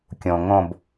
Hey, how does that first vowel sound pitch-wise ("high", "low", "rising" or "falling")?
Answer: low